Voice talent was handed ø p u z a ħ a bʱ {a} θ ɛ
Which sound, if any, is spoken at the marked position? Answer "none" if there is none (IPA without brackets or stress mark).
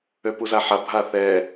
a